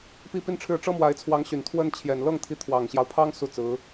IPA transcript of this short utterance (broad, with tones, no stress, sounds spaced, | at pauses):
p i˥˧ p i˥˧ n ʈ͡ʂʰ ɻ̩˥˩ ʈ͡ʂ ɤ˥ m w a˧˥ ɪ̯ t͡sʰ w ɑ˧˥ ŋ ɕ y˨˩ n t̪ʰ w ə˥˩ n t͡ɕʰ j ɛ˨˩ n l ɤ˥˩ ŋ t̪ʰ i˧˥ t̪ʰ w ɑ˨˩ ŋ ɕ j ɑ˦ ʊ̯ pʰ ɑ˥ ŋ s u˥˩ t͡s ɹ̩˧˥